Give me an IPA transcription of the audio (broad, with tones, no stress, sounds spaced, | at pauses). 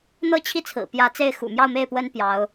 n̪ ɤ˥˧ t͡ɕʰ i˥˩ t͡sʰ ɹ̩˨˩ p j ä˧˥ t͡s e˥˩ ɪ̯ x ṵ˨˩ m j ɑ˥˧ ʊ̯ m e˥˩ ɪ̯ p w ə˥ n p j ɑ˧˥ ʊ̯